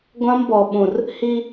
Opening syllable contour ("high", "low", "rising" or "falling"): high